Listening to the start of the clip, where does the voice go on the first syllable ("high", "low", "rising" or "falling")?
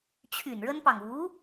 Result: low